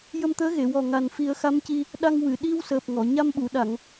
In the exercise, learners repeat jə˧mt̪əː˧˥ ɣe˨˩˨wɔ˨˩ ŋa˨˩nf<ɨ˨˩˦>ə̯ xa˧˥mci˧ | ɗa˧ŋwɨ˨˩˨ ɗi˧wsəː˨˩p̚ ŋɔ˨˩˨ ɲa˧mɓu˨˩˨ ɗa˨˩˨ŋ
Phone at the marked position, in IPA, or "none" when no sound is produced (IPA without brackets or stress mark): i˨˩˦